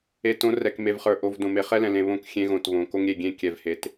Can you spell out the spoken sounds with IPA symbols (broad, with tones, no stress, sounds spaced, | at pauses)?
e˨ t õ˨˦ r ɛ˨ k m e˨ v χ ə˞˨ ʔ o˨ v d õ˨ m e˨ χ ɛ˦ l ɛ̃˨ l ẽ˨ β õ˦˨ k xʲ ẽ˦ ɣ õ˨ t β õ˨ k o˦ ŋ ɾʲ e˦˨ ɡʲ ẽ˦ kʲ ɛ˨ v h e˨ t